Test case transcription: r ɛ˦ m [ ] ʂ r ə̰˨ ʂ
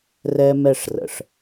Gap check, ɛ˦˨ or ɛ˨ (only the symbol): ɛ˦˨